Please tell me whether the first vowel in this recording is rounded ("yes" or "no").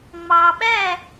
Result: no